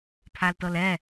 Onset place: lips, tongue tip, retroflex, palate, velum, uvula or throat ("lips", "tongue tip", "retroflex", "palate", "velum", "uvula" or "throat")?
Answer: lips